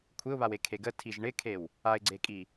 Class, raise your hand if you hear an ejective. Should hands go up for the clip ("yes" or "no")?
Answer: yes